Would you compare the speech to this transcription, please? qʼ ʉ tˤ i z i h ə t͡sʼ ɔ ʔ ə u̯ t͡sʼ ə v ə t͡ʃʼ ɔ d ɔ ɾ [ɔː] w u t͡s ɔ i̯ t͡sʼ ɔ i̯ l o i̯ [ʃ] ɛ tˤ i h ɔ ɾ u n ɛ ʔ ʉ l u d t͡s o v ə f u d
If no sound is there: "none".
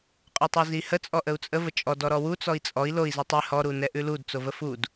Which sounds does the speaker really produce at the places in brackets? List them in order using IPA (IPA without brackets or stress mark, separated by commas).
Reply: ɔ, z